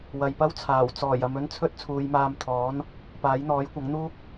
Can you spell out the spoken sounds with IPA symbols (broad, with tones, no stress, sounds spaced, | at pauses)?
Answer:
w ɐ˨ j p ɐ˥ w t͡sʰ aː˨˩ w t͡s ɔː˨˩ j ɐ˨ m ɵ˧ n t͡sʰ ɵ˥ t̚ t͡sʰ uː˨˧ j m aː˧ m t̪ʰ ɔː˨˥ n | p aː˨˥ j n̪ ɔː˨˥ j kʷ ɐ˨˥ ŋ n̪ uː˥ k̚